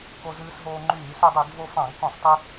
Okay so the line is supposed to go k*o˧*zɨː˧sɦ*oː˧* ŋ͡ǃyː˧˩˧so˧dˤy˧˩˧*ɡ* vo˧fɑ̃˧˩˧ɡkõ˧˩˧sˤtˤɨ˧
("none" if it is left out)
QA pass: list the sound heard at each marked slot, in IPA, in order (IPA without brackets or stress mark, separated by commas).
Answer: o˧, oː˧, ɡ